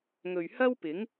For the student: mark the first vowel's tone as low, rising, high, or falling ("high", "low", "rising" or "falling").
low